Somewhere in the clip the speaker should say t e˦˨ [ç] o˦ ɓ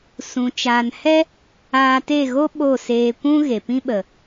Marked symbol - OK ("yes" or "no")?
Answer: no